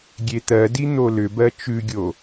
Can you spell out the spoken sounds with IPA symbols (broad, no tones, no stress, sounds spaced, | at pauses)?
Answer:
ɡʲ e t̪ ɜ d i n̪ o l ʏ b ɜ t͡ʃ ʉ ɡʲ o